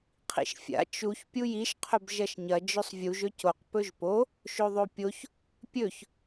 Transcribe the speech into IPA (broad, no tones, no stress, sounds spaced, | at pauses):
qʰ ḭ ʃ fʲ a̰ t͡ʃ u ç pʲ u j i ʃ qʰ ɵ b ʒ ɐ ʃ ɲ ɐ d͡ʒ ɵ sˤ vʲ u ʒ ɵ c o q p ɵ ʒ p o | ʃ o ðˤ o pʲ o ç | pʲ ɵ ç